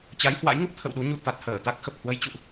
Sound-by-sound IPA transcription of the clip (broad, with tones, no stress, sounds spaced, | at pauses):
t͡ɕ a˨˦ j h w a̰˧˥ j ŋ ə˦˥ p̚ t̪ʰ ə̰˧˨ w ɗ u˨˦ ɲ u˧ t̪ a˨˩ t̚ h əː˧˩ t̪ a˦˥ k̚ x ə˨˩ p̚ h w ə˨˦ j t͡ɕ ṵ˧˨ ʔ